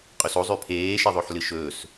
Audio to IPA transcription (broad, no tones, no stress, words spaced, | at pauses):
qʼɵso zˤʉpʰeː ʃeðˤoħlɨʃɵːs